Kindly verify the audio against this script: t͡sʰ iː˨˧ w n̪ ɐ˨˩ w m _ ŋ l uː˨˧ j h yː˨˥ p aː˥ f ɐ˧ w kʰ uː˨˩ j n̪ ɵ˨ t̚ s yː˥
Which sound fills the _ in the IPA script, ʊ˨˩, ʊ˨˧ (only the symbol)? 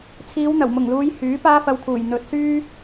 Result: ʊ˨˩